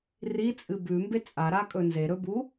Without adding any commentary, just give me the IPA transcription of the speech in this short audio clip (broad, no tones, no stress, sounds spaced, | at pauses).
r i t͡sʼ ɨ b ʉ m b e t͡sʼ a ɾ a kʼ ɵ n z e ɾ ɵ b u